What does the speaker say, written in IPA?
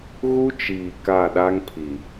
ɣ u˦ t͡ʃ iː˨ k a˦˨ ɗ a˦ ŋ pʰ i˨

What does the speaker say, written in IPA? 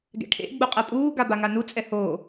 ɡ ɛ̰ ʈʰ ḛ ɡ͡b u qʼ ɛ pʼ uː ɡ a b a ŋ a n u t͡sʼ ɛ h oː

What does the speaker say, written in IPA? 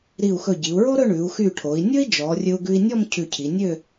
ɾ i˧˩ u̯ x ɵ˧˩ ɟ i˩˧ u̯ ɹ o˥ ɾ ɵ˥˧ ɳ ʉ˩˧ u̯ x y˧˩ ʈʰ o˩˧ i̯ nʲ ɵ˥ i̯ d͡ʒ ɔ˩˧ rʲ ɵ˧ u̯ ɡ ʉ˧ i̯ nʲ ɔ˥˧ m cʰ ʉ˧˩ cʰ i˩˧ nʲ ø˥˧

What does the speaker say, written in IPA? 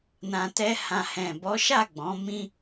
n ã˨ t ɛ˧ h ã˨ h ɛ̃˨ b ɔ˨˦ ʃ a˦˨ ɡ͡b ɔ̃˨˦ m ĩ˦

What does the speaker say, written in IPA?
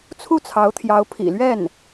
t͡sʰ u˥˩ t͡sʰ ɑ˧˥ ʊ̯ t̪ʰ j ɑ˧˥ ʊ̯ pʰ ḭ˨˩ l ɥ ɛ˥˩ n

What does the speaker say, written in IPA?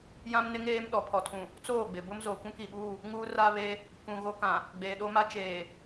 j ã˦ m n ɪ˦ ŋ eː˦ m ɗ ɔ˨ pʰ ɔ˨ tʰ ũ˨ | t͡s oː˦˨ ɡ͡b ɪ˨ b ʊ˦ m z oː˨ kʷ ũ˦ k i˨ ɓ uː˦˨ | ŋ uː˦ r a˦ β e˦ | k ũ˨ ɣ o˦ k ã˨ | ɡ͡b eː˨ ɗ o˦ m a˦ t͡ʃ eː˨

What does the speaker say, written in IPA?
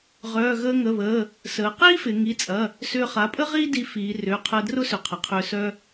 ʁ œː˩˧˩ ɣ əː˧ ŋ ə˩˧˩ β əː˩˧˩ | s əː˩˧ q iː˥ f ɪ˩˧ ŋ i˩˧˩ t͡sʼ ɐ˩˧˩ | s ʏː˧ χ a˩˧˩ pʼ ə˥ ʁ iː˥ d i˧ f iː˩˧ r ʏː˩˧˩ qʰ əː˧ d r ʊ˥ s ʏ˩˧˩ qʰ ə˩˧ qʰ ʏː˧ s œ˧

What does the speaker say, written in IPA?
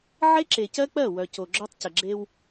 ʕ e˦ ǁ e˨ c ɜ˦ k͡p ɜ˦˨ w œ˨ c o˨ ɡ͡ǁ œ˦ tˤ c ə˨ ɡ͡ǁ e˦ w

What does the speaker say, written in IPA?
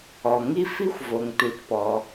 ɔ˩ ŋ i˥ f i˥ xʷ v o˩ ŋ t u˩ t p ɔ˩

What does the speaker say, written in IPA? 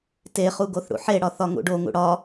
t e χ u ɡ o θ ɽ ṵ ħ e ɽ ɒ θ ɒ ŋ ṵ ɖ o ŋ ṵ ɽ ɒ

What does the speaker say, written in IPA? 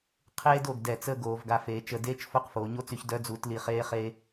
qʰ eː˧ d o˩˧ ɡ d ɛ˧˩ t͡s əː˥˧ ɡ oː˩˧ v ɡ a˧ f eː˩˧ t͡ʃ ə˧˩ d eː˥ t͡ʃ f o˥˧ q f oː˩˧ ɲ o˥ t͡s y˧ ç d œ˧ d͡z u˩˧ t l i˧˩ χ eː˧ χ e˧

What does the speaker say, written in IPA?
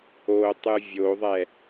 o tˤ ɨ vʲ o ðˤ ɛ

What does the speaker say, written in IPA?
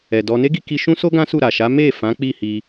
ɛ˨ d ɔ˧ n e˦ ɡ i˧ k i˧ ʃ ũ˦ s o˦ ɡ ã˦ s u˦˨ ɾ a˨ ʃ a˨˦ m e˦˨ f ã˨˦ k͡p i˦˨ h i˧

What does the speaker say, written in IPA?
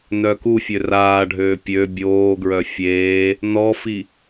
n œ k u fʲ ø r aː ɖʱ øː pʲ ø bʲ oː ɡ ɹ œ fʲ eː | n ɔ f i

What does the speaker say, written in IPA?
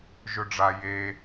ʒ ɵ ɖ͡ʐ a j e

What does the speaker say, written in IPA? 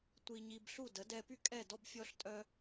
tʷ i˧ ɲ i˧ b ɬ u˦˨ d ə˨˦ d ɛ˧ p y˦ kʼ ɛ˦˨ d ɔ˧ b fʲ ɔ˧ ɬ tʼ œ˧

